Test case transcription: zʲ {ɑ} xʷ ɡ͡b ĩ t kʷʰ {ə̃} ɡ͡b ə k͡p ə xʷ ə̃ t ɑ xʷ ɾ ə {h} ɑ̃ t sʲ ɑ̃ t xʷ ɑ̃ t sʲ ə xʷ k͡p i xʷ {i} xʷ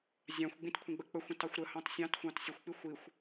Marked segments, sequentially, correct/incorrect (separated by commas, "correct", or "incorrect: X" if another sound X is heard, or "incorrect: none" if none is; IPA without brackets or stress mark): incorrect: ɑ̃, correct, correct, correct